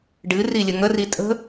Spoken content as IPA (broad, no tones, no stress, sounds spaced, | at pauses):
ɖ ɨ r i lʲ ə ŋ ə r i tʼ ə̤